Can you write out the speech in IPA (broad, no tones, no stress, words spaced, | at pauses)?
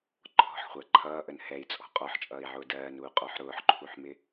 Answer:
ǃʰɔ̤ħχʷæ ǃʰʌːʔən hɛi̯t͡sʼɔ̤ qʼɔħt͡ʃʼʌːi̯ʕʊː dɜːnuːqʼɔħ ɾʊːħǃʰuħmɪ